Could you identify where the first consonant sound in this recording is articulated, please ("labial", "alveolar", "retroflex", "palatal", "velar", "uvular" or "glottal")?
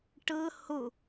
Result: retroflex